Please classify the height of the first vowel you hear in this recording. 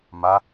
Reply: low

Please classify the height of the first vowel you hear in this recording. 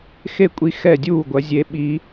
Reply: mid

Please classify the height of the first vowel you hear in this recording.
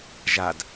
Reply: low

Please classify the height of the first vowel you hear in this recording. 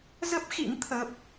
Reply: mid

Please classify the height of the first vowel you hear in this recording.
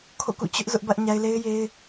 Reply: mid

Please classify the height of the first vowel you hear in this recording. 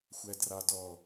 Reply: low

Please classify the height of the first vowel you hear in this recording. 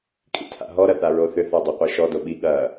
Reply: high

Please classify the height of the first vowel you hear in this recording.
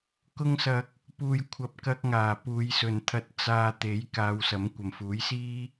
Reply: high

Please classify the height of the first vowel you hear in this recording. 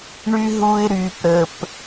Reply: high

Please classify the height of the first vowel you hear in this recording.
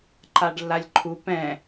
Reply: low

